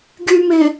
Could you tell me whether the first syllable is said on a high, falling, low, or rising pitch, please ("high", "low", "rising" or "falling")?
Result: low